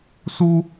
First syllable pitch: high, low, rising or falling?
high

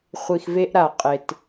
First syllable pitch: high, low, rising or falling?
low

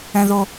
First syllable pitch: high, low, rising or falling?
low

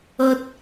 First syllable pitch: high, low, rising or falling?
high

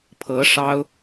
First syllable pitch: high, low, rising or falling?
rising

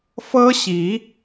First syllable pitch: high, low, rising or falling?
high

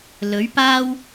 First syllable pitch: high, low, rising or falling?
rising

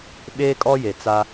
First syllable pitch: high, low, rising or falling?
high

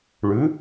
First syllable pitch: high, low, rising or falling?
rising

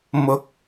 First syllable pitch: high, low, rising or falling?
rising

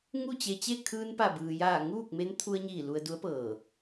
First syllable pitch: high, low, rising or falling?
falling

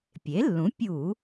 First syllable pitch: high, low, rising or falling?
rising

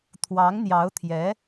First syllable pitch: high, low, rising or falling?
rising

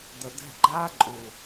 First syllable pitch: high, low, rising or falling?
low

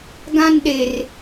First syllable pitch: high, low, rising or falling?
high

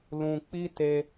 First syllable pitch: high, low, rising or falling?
high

